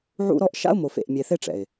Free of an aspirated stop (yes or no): yes